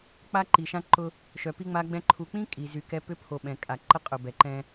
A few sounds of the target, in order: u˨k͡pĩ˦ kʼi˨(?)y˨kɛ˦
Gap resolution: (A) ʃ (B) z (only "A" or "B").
B